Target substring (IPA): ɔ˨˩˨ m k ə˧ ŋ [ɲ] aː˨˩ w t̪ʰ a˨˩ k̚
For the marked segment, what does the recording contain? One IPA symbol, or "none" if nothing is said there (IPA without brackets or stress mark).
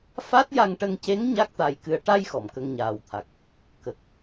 ɲ